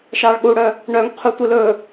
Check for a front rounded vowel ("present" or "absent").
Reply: present